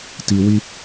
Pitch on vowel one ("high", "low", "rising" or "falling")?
low